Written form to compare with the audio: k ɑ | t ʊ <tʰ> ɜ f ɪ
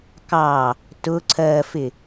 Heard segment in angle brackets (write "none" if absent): ǀʰ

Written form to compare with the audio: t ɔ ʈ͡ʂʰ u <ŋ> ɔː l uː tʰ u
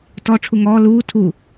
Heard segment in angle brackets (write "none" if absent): ŋ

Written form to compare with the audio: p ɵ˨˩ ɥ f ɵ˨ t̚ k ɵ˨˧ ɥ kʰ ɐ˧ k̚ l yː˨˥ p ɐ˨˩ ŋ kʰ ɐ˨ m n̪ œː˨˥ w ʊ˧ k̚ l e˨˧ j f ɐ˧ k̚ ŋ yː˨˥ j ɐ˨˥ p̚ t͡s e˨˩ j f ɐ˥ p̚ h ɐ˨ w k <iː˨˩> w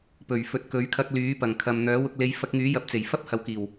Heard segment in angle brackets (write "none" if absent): iː˨˩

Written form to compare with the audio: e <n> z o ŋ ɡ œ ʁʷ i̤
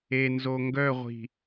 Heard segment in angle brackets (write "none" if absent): n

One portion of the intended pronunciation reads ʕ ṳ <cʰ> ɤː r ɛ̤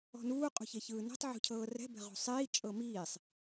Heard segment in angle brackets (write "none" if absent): cʰ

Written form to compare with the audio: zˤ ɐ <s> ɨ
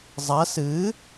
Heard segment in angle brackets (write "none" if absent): s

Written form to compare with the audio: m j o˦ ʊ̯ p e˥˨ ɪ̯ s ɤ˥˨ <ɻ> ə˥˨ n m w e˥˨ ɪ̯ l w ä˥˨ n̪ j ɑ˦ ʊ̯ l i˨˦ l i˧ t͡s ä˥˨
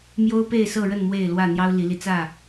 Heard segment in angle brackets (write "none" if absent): ɻ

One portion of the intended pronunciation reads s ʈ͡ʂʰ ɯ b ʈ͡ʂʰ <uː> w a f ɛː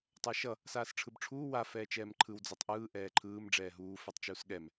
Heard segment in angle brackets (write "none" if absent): uː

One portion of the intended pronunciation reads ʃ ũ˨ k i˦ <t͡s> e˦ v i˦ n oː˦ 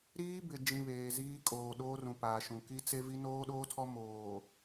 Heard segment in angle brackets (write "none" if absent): t͡s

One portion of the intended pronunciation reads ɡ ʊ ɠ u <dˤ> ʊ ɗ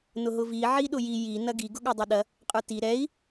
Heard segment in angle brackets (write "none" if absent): dˤ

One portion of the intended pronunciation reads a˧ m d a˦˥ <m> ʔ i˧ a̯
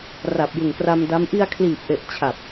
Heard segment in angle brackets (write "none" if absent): m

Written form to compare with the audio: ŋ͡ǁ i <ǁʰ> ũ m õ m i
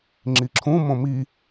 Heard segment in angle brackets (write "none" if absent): ǁʰ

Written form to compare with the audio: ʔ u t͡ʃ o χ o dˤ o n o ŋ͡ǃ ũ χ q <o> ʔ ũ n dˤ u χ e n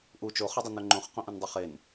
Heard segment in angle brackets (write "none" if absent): õ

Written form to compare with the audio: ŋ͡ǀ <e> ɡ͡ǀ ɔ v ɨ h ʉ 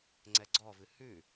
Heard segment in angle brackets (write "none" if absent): ɛ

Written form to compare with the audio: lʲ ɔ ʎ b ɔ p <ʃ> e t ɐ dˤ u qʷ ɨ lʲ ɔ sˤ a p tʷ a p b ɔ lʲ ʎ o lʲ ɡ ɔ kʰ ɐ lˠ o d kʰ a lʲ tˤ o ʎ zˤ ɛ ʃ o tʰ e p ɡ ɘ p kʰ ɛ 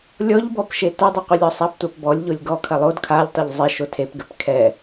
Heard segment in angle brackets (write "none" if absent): ʃ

